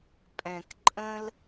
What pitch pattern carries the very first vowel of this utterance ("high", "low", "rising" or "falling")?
low